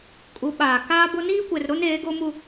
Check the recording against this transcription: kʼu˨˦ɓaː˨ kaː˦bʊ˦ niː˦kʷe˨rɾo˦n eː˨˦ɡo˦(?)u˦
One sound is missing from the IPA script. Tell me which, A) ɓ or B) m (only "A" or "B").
B